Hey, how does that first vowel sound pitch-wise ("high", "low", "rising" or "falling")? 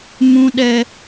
high